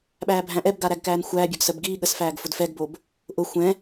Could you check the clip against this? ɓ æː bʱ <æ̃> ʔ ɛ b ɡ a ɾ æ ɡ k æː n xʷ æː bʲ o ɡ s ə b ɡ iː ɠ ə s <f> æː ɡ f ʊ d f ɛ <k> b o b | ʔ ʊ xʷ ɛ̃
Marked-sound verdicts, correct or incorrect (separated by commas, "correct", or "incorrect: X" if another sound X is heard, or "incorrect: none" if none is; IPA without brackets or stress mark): correct, correct, incorrect: ɡ